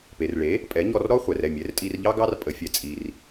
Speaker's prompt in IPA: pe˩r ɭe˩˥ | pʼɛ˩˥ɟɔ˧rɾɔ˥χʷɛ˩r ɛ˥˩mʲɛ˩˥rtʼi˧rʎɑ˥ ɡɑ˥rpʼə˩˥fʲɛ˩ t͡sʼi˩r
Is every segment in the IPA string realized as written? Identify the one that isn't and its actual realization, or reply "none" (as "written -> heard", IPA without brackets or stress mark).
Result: ɟ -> ɲ